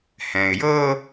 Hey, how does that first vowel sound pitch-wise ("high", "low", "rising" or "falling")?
low